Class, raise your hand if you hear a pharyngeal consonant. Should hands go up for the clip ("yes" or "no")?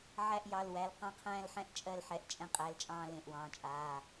yes